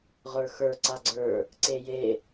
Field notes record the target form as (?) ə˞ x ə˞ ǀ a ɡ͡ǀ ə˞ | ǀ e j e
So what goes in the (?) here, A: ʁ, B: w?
A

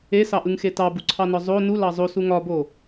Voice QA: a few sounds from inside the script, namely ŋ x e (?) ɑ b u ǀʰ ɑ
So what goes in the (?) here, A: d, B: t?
B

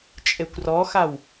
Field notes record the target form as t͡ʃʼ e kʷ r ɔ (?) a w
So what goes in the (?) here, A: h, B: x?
B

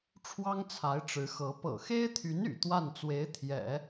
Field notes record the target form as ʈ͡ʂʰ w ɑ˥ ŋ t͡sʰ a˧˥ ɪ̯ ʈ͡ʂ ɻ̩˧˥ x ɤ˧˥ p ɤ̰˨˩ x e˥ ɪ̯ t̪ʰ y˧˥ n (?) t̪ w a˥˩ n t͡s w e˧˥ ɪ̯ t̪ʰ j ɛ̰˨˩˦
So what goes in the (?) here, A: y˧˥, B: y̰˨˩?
B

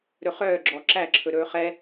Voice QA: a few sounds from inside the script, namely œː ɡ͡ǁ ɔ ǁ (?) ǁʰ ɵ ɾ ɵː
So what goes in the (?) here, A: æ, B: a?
A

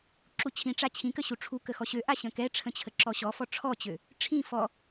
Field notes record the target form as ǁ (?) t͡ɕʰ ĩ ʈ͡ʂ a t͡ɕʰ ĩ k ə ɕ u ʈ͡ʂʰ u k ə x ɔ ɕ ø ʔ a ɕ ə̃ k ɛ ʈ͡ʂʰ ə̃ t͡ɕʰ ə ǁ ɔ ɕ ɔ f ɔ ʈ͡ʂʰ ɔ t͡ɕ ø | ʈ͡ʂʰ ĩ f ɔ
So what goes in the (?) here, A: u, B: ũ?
A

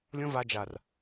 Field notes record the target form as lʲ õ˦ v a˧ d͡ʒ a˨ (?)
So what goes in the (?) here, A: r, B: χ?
A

